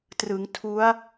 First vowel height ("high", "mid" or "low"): high